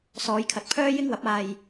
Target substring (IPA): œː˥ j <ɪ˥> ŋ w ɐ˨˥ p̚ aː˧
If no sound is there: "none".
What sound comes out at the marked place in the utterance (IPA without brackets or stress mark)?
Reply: ɪ˥